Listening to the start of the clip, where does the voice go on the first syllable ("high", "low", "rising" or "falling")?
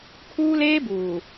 high